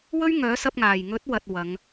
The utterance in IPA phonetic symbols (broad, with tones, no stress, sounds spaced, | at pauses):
w ɵ˥ ɥ ŋ œː˨˥ s ɐ˧ p̚ ŋ aː˨˩ j ŋ ɵ˨˥ t̚ w ɐ˧ t̚ w ɐ˨˧ ŋ